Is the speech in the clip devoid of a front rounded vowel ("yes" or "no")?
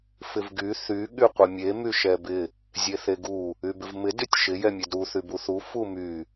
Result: no